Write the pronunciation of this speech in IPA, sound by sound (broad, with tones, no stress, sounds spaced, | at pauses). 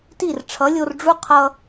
t i˦˨ r ʈ͡ʂʰ ʌ˨˦ lʲ o˧ r ɖ͡ʐ u˦ qʰ ʌ˧